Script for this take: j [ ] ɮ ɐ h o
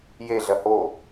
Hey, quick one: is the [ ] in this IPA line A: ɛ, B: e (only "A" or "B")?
B